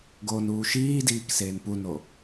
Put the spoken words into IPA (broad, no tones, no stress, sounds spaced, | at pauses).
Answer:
ɡ oː n uː ʃ iː d iː k s eː n p u n o